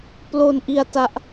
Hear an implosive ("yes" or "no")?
no